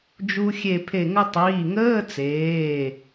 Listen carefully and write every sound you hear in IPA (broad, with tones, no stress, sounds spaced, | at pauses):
d͡ʒ u˧ xʲ e˧˩ pʰ e˧˩ ŋ ə˧ tˤ iː˩˧˩ ŋ əː˧˥˧ t͡s eː˩˧˩